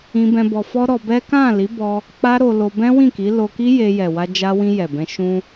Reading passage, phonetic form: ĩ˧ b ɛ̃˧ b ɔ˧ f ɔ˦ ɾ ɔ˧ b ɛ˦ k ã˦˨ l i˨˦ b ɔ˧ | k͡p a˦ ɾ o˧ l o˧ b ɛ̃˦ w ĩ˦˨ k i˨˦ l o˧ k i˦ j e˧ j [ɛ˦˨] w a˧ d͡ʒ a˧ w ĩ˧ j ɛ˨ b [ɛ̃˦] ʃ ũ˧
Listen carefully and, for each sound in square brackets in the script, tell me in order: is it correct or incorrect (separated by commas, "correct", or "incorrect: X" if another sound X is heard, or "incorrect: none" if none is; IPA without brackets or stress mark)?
incorrect: ɛ˨, incorrect: ɛ̃˧